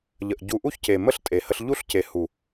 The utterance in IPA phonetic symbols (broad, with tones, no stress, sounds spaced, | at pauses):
ʎ ə˨ ʔ ɟ u˨ ʔ u˦˨ ç c e˨ m ə˦ ɬ tʼ e˨ h ə˧ ɬ ʎ u˦ ɬ c e˨ h u˨